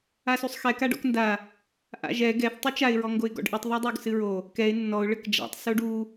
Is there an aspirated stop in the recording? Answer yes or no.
no